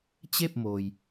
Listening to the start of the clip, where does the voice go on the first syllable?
falling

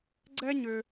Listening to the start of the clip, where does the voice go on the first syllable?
high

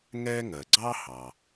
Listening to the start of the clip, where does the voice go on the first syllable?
high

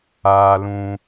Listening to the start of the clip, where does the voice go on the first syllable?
high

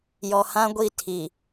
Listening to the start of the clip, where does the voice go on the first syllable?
low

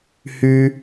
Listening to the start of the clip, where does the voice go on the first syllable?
high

